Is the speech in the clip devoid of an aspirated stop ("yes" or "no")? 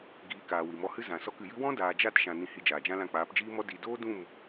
yes